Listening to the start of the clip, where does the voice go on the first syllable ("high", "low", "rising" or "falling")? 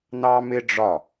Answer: high